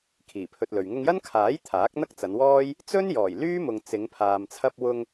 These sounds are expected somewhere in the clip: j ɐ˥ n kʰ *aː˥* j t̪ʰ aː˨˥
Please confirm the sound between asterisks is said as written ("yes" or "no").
no